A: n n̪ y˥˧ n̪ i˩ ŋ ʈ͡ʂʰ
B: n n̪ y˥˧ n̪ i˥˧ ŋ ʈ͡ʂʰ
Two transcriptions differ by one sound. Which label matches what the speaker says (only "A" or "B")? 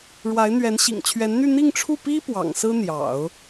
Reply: B